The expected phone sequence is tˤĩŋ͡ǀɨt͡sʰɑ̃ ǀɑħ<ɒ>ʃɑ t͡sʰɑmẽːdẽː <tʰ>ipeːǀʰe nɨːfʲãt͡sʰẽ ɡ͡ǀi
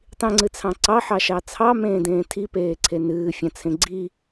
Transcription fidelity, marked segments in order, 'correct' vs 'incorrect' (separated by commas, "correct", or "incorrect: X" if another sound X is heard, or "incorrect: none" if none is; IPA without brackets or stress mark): incorrect: ɑ, correct